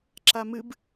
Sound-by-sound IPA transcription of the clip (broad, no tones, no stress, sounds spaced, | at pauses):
ǁ a m ɨ b